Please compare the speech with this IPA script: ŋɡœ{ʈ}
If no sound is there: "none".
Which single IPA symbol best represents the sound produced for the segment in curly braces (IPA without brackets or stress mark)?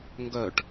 ʈ